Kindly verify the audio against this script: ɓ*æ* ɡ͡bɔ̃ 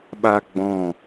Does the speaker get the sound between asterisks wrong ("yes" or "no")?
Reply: yes